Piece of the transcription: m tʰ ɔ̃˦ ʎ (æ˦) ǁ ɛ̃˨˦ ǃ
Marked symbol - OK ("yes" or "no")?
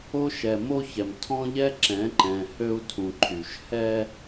no